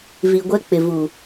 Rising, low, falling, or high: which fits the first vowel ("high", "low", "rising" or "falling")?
low